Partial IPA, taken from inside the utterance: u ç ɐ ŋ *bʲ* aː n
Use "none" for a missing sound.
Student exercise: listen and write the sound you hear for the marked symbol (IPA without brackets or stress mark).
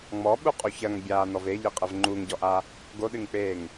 bʲ